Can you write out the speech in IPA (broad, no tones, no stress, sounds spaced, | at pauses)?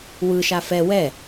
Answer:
w ɯ ʃ a f ɛ w ɛ